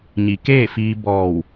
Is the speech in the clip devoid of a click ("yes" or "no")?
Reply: yes